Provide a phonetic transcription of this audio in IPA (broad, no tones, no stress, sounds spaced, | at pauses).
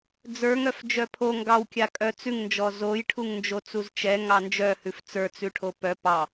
d͡z ə˞ ŋ œ f d͡ʒ œ pʰ o ŋ ɡ ɑ w kʲ a kʼ œ t͡s ʉ ŋ n d͡ʒ ɔ z o j ʈʰ u ŋ n d͡ʒ o t͡s u z t͡ʃ ɛ ŋ ɑ n d͡ʒ œ h ʉ f t͡s ə˞ t͡s ʉ ʈʰ o p œ p ɑ